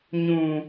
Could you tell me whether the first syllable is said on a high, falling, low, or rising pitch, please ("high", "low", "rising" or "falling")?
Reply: high